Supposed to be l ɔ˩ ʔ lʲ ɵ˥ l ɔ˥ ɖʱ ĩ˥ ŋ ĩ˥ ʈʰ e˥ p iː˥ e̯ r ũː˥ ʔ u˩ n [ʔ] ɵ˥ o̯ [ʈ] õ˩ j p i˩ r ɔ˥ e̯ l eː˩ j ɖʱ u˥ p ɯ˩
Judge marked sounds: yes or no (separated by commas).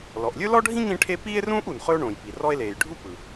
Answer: no, no